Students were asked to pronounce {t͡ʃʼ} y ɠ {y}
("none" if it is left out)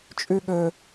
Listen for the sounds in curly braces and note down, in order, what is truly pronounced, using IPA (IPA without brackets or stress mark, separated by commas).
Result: t͡ʃʼ, ø